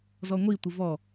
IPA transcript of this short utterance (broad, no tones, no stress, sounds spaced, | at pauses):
z ɔ ŋʷ i tʷ ɨ v ɔ